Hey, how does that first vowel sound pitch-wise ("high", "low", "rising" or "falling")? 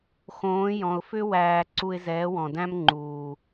rising